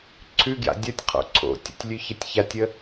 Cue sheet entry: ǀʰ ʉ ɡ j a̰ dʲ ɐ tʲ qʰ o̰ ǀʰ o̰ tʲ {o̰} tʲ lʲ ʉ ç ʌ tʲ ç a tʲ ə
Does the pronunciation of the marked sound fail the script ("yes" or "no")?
yes